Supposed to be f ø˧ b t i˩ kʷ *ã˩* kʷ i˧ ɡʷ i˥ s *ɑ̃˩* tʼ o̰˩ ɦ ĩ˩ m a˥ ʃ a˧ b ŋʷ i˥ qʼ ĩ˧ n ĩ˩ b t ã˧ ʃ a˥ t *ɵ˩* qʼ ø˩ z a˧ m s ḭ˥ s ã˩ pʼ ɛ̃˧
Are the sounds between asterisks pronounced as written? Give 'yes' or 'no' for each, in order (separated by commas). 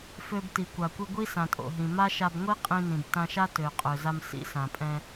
no, no, no